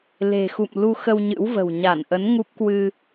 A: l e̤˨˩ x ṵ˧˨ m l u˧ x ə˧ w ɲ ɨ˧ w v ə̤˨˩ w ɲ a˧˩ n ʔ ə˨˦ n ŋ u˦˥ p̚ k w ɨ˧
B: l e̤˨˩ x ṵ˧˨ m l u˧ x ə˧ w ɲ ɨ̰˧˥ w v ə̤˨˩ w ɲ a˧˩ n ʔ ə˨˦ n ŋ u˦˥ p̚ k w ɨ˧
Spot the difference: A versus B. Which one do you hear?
B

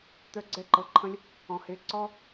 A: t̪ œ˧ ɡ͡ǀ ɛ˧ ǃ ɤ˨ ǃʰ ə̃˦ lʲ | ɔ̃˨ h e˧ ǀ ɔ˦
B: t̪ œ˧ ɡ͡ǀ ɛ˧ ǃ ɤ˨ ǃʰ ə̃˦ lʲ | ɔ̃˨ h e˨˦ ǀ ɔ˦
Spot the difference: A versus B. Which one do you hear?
B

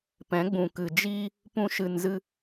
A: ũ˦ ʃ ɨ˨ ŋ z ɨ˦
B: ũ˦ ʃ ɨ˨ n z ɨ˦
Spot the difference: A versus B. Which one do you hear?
B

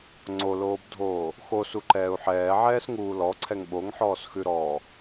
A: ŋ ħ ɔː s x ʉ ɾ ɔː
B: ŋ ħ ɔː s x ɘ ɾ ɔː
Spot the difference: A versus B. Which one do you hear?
A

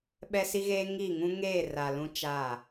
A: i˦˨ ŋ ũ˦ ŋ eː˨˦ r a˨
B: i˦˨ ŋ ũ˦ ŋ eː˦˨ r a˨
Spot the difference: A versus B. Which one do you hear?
B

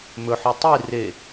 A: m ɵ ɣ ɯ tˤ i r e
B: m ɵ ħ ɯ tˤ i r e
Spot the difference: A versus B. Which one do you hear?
B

